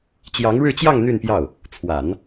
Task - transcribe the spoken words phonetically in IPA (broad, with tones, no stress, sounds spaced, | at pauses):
t͡ɕ j ɑ˧˥ ŋ ɻ ɻ̩˥˧ t͡ɕ j ɑ˥˧ ŋ n̪ y˥˧ n p j ɑ˥˩ ʊ̯ | t͡sʰ w a˨˩˦ n